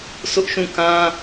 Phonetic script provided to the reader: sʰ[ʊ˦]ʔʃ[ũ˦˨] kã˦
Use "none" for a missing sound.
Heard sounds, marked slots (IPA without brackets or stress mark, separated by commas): ʊ˦, ũ˦˨